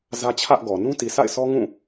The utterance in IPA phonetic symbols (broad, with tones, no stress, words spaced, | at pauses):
zä˦t͡ɕʰä˦ʔɡɔ˨ nũ˦ti˨sa̰˦˨ɪ̯ sʰɔ˦ŋũ˦˨